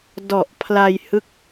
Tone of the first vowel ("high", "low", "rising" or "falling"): low